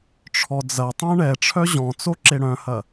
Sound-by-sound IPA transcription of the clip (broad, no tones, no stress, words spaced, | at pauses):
ʈ͡ʂʰɔd͡zɐtˤœ̃ ɳɛʈ͡ʂʰœ ʑɔ̃t͡so ǁeɽœ̃hɐ